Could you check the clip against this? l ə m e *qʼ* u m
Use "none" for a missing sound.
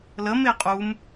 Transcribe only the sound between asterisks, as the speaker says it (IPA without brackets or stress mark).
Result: qʼ